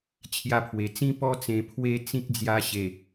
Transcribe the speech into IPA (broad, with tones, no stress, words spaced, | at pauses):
t͡ɕʰja˧pʰwe˨˩t͡sĩ˦ pɔ˧t͡sẽ˨˩ pʰwe˧ t͡sĩ˦k̚d͡zja˧ɕe˨˩